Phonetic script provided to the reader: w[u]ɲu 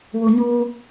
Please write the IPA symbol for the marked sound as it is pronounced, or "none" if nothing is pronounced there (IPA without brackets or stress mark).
u